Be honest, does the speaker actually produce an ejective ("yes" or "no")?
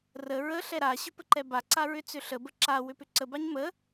no